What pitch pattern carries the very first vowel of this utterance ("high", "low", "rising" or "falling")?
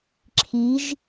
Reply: rising